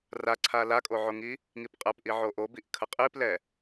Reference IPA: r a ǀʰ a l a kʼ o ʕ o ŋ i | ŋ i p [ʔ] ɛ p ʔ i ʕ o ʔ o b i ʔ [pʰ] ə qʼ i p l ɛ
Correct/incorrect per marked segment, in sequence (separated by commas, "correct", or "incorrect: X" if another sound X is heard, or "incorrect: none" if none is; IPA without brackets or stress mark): incorrect: qʼ, incorrect: kʰ